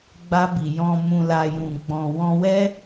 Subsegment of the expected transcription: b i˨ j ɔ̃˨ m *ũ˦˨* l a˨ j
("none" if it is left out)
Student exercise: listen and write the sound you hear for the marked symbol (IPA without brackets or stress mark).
ũ˨